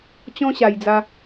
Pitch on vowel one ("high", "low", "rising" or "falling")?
high